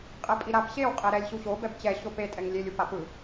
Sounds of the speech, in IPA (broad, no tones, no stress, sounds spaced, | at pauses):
qʼ ɛ pʼ i ɾ a p ɕ e w qʼ e ɾ ɛ lʲ ɕ u ɕ o b ɛ b t͡ɕ ɛ ɕ o p e tʼ ɛ ŋ lʲ e lʲ u p a p ɯ